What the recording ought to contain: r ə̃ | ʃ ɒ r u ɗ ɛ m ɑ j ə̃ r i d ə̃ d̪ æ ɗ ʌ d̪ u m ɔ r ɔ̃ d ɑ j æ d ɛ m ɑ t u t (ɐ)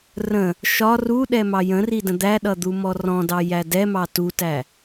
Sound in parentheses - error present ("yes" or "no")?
yes